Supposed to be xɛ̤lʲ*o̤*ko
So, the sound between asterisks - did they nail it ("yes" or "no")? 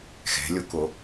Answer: no